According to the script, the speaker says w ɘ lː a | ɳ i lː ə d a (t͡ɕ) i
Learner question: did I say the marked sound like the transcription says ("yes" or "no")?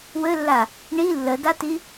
no